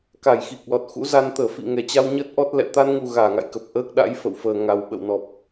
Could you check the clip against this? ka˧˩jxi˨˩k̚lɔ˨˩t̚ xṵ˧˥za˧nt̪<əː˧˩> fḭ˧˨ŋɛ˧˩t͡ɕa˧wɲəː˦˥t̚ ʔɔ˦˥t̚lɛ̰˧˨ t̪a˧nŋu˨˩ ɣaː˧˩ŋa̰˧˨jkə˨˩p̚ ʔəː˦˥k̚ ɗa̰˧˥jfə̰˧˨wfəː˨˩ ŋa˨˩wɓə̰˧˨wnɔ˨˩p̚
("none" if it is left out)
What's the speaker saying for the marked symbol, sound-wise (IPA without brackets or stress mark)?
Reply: əː˧˩